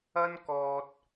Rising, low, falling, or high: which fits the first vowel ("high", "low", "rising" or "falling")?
high